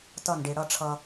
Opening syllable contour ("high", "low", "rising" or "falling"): falling